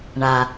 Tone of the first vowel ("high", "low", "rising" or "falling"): low